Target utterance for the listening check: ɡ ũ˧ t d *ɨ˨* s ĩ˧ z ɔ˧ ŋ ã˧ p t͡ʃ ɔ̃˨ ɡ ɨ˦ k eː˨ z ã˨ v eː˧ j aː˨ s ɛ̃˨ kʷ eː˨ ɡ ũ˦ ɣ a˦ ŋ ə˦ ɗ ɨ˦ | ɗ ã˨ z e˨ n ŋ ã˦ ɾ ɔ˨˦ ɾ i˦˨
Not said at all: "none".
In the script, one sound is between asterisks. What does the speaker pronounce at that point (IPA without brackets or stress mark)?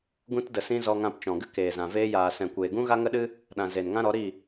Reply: ə˨